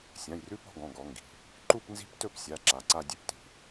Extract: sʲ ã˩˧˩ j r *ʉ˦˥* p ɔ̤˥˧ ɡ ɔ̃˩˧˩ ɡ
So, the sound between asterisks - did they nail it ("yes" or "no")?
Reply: yes